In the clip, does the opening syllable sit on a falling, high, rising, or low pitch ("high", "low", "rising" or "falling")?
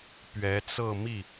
rising